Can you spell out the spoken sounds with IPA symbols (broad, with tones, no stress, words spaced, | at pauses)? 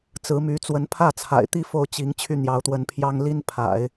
t͡sɹ̩˧˥my˧˥ t͡swə˧˥npʰä˥˩t͡sʰa̰˨˩ɪ̯t̪i˥ fo˥˩ʊ̯t͡ɕi˧˥ŋ t͡ɕʰy˥˩n̪jɑ˧˥ʊ̯t̪wə˧˥npʰjɑ˥ŋ li˥npʰa̰˨˩˦ɪ̯